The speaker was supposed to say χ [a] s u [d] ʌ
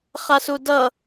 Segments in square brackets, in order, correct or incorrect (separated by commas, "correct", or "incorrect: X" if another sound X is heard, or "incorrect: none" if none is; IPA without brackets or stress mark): correct, correct